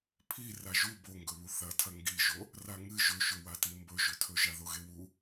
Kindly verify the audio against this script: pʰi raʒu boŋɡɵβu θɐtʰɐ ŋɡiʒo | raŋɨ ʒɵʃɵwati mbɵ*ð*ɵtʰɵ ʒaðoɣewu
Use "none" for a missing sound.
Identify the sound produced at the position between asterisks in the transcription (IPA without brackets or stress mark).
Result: ʒ